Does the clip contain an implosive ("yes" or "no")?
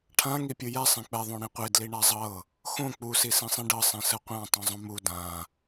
no